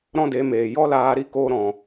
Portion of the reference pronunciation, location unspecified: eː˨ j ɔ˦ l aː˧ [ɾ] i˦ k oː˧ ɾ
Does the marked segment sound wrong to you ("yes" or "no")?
no